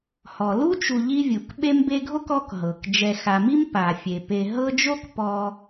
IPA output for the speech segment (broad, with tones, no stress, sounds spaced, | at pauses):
h ɔ˩ l u˦ t͡ʃ u˨ ʎ i˦ vʲ u˩ k ɓ e˦ m b e˦ ɡʱ o˥ k ɔ˦ k ɦ ɤ˩ k d͡ʒ ɛ˨ x a˨ m i˥ m p a˩ fʲ e˩ p e˨ ɦ ɤ˦ d͡ʒ o˥ k p ɔ˦